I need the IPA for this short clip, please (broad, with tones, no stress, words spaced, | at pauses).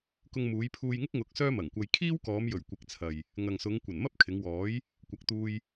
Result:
kʊ˧ŋmuː˨˧jpʰuː˧jŋɪ˥k̚ ŋʊ˧k̚sœː˥mɐ˨˩ŋkʷɐ˧j kʰiː˥wkɔː˨˧m jɵ˨˩ɥkʷɪ˨˥k̚t͡sʰɐ˨j | ŋɐ˨ŋsʊ˨˧ŋ kʷɐ˨˩nmɐ˥p̚kʰɪ˨˧ŋwɔː˨˥j | kʷɐ˨k̚t̪uː˧j